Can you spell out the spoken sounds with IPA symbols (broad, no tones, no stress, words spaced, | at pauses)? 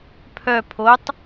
pʰœ pʰotˤ